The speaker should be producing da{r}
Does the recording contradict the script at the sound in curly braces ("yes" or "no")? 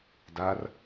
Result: no